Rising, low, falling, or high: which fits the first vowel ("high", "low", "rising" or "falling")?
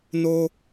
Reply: low